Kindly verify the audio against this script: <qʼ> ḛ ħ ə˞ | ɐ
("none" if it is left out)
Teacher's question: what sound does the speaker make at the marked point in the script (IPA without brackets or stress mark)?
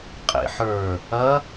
qʼ